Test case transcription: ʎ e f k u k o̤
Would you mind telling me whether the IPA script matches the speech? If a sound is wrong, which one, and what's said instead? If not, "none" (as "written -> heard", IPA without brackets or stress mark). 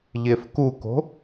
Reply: none